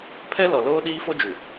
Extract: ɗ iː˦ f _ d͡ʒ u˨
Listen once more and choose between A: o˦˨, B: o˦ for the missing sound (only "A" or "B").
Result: B